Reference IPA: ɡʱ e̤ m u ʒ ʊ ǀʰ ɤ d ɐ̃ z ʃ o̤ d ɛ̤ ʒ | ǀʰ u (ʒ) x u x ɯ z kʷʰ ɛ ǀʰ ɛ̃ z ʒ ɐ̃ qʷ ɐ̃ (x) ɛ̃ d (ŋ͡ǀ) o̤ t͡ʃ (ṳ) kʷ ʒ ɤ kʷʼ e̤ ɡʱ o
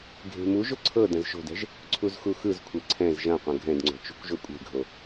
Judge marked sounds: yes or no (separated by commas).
no, no, yes, yes